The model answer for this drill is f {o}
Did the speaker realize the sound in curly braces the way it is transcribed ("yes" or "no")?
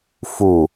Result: no